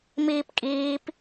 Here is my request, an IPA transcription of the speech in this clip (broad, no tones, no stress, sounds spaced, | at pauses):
m iː p kʼ iː p